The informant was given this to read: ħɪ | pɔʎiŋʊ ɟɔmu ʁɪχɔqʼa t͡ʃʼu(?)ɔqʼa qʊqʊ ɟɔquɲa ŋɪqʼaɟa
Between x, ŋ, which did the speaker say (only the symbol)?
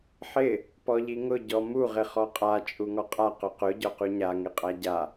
ŋ